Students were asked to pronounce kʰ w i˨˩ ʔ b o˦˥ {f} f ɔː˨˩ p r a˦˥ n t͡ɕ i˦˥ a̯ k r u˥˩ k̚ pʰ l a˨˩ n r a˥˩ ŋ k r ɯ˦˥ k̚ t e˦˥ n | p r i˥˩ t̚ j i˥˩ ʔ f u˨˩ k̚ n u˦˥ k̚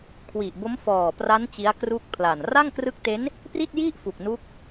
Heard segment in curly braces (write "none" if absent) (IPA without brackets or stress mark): m